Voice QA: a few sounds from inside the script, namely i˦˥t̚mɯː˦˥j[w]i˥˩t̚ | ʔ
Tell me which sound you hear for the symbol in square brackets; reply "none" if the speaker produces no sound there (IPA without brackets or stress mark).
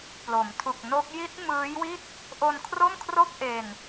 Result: w